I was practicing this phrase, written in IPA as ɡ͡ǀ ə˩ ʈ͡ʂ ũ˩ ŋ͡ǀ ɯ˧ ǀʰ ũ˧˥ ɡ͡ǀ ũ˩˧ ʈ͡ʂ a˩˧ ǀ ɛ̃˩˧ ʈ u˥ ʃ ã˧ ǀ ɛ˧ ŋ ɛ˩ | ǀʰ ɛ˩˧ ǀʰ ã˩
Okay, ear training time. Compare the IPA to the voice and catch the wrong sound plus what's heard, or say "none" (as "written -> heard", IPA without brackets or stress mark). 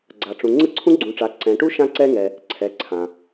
ə˩ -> a˩